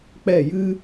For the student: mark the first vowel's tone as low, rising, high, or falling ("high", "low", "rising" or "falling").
falling